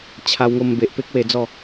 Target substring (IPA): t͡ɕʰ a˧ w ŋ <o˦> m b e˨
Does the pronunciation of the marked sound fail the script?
yes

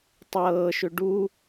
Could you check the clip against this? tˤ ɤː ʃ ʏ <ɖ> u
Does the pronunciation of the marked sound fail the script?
no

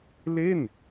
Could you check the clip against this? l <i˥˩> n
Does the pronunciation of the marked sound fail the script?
yes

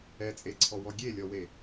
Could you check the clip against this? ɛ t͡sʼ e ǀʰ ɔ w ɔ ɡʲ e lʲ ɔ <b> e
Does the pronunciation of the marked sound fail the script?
yes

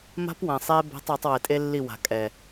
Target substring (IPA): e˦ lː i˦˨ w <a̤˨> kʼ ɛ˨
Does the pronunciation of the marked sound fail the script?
no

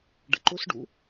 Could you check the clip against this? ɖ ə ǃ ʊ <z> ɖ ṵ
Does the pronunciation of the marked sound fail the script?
yes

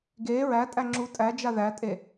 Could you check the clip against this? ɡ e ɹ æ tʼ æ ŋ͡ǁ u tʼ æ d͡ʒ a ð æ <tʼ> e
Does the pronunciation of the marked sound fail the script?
no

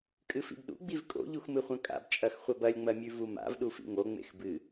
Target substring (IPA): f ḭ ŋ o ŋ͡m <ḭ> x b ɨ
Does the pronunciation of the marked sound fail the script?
yes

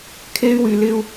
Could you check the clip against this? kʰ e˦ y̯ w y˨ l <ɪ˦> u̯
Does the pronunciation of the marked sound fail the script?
no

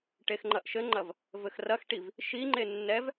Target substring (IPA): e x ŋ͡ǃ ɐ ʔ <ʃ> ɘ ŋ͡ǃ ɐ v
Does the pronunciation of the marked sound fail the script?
no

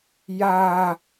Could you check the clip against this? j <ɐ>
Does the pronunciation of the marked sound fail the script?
yes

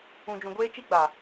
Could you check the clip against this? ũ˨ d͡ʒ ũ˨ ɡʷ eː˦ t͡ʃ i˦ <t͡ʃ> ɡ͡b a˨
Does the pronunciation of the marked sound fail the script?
yes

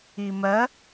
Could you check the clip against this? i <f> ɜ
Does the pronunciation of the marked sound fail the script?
yes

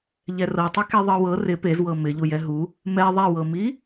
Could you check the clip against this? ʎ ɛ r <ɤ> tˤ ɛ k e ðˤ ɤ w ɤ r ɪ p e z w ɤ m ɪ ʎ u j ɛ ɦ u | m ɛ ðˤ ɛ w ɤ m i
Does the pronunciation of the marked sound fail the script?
no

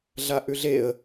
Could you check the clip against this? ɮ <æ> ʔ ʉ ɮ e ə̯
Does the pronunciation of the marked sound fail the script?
yes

